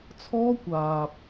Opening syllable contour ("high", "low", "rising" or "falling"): high